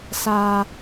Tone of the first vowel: high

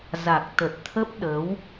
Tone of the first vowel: low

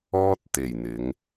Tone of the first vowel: high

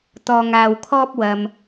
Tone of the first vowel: low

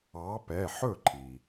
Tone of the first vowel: rising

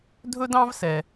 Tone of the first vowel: high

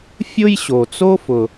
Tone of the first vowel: high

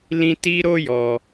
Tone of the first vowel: high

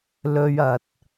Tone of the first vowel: low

